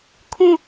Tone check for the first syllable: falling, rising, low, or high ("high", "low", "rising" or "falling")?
falling